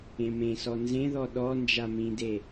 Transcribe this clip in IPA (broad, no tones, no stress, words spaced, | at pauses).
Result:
ẽmẽsɔ nzẽðɔ ɗɔ nd͡ʒamĩde